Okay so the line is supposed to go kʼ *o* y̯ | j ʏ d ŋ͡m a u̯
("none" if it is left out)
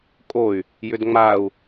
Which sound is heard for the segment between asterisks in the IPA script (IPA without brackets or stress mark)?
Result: o